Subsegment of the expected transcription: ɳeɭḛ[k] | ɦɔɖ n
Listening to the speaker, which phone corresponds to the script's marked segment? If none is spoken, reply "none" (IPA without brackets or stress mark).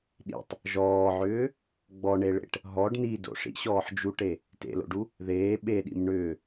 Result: ʈ